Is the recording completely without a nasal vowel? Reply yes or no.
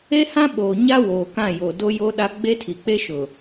no